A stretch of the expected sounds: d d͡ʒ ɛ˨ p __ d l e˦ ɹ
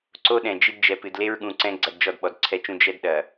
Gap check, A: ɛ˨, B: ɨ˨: B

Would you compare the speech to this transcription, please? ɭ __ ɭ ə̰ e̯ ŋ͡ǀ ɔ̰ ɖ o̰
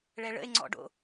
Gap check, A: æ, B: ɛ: B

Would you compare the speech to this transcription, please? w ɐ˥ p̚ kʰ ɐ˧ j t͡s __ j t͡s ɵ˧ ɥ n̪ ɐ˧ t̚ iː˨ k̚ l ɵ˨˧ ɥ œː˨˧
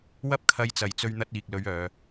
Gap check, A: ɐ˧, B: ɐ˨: B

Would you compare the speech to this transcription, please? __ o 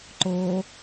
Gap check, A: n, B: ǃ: B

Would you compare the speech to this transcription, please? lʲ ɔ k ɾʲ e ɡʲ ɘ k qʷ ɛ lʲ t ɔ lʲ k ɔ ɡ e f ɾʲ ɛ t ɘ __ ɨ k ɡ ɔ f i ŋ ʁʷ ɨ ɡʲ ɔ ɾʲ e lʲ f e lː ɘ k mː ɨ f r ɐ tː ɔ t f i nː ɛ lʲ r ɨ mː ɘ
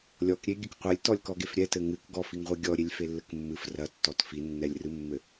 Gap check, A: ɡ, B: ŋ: B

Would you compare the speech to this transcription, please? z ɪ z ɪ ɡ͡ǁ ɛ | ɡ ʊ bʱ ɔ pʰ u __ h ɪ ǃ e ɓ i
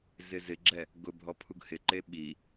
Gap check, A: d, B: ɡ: B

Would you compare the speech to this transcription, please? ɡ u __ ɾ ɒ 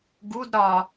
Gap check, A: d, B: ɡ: A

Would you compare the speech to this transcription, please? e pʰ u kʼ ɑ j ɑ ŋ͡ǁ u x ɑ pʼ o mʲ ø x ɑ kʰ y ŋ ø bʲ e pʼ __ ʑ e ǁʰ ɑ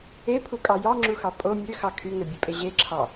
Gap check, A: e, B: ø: A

